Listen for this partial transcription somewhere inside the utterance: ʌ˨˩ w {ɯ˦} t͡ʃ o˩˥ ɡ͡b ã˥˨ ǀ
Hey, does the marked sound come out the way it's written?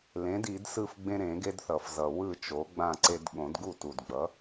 no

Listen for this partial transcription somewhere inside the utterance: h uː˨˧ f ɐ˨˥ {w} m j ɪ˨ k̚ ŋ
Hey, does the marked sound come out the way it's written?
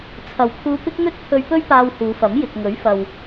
no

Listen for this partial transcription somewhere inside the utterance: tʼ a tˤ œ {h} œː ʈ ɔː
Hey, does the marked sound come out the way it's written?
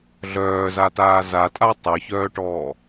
no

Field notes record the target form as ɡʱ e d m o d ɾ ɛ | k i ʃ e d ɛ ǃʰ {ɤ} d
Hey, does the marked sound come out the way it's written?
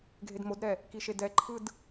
no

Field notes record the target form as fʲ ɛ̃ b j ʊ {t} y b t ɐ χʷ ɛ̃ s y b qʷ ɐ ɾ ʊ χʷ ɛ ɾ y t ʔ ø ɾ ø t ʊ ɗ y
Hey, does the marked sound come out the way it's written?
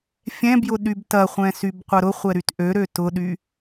no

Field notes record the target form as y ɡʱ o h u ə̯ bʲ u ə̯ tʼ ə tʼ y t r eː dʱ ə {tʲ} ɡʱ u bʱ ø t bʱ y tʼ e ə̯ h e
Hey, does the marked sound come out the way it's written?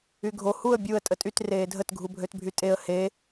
no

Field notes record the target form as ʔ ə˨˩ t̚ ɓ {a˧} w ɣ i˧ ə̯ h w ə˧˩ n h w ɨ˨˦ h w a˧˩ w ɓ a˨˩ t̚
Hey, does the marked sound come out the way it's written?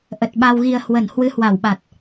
yes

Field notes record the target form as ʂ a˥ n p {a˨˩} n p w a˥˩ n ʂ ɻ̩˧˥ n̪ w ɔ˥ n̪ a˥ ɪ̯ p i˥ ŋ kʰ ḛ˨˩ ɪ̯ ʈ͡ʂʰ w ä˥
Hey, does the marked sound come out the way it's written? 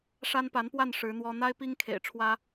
no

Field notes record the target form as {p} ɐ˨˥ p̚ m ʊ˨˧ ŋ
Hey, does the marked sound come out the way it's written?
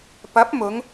yes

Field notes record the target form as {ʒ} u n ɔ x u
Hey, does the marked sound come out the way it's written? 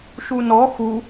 no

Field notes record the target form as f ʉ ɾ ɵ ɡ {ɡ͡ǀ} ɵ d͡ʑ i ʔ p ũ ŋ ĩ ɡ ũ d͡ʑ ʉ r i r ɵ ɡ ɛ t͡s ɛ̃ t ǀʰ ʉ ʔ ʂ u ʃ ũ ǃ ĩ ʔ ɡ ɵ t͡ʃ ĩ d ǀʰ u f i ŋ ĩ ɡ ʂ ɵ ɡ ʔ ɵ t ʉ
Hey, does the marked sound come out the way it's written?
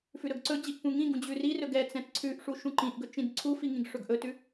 no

